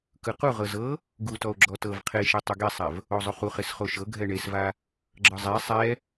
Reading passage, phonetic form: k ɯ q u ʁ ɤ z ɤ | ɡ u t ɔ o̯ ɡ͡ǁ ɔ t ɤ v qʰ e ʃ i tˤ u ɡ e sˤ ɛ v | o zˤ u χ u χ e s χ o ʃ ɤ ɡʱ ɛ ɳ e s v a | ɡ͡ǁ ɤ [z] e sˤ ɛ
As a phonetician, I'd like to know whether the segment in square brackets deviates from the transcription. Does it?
yes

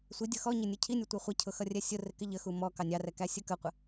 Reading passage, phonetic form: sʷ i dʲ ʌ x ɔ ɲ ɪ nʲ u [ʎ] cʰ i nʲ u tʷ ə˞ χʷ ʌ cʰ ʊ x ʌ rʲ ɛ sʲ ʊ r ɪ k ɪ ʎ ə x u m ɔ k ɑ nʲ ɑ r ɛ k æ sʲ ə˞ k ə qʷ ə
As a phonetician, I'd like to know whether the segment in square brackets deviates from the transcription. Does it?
yes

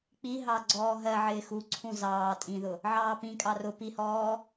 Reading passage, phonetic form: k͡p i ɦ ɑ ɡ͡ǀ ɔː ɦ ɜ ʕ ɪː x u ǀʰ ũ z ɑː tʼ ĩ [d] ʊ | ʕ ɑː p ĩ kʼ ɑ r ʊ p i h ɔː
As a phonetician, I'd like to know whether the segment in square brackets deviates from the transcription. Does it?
yes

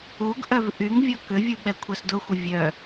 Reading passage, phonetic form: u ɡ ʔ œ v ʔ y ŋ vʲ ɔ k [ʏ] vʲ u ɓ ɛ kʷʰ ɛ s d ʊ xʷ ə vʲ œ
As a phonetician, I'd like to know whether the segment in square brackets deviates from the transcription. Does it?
no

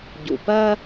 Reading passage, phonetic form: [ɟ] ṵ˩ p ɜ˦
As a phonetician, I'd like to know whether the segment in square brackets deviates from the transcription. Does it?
no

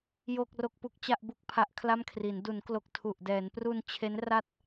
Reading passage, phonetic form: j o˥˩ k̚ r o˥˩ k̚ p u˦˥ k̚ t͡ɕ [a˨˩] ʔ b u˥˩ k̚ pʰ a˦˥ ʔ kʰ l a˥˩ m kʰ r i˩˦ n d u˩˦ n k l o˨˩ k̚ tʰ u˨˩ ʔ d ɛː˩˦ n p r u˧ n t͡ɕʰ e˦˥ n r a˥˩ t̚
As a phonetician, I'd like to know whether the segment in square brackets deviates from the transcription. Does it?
yes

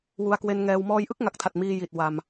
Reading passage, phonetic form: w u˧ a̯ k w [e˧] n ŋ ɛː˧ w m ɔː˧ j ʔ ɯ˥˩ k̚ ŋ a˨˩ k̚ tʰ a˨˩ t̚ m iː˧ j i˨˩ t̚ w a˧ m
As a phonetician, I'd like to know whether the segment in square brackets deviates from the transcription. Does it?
no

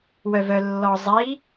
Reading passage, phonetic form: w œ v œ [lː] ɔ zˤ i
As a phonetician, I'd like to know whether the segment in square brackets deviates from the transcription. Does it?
no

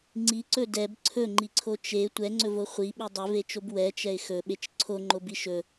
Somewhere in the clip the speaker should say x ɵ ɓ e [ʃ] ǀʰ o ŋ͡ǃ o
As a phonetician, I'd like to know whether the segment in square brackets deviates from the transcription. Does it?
yes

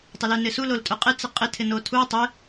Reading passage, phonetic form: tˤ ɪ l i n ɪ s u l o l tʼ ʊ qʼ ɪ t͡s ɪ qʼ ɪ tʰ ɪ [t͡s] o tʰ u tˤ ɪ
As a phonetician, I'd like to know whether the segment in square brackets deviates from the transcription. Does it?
yes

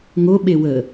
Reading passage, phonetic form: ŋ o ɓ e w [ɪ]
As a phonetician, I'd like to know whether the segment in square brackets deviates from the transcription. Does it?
yes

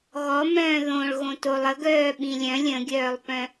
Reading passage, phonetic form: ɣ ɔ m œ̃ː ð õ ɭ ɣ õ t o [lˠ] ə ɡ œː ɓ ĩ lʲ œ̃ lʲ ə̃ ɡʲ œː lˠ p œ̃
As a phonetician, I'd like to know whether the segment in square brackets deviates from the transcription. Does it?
no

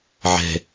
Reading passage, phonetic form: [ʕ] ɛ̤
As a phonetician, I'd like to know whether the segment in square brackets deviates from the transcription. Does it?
no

